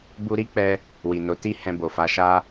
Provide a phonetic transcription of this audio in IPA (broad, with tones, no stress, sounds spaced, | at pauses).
b u˧ ɾ i˦ k͡p ɛ˧ | w i˨ n o˨˦ t i˦ h ɛ̃˧ b o˨ f a˨˦ ʃ a˦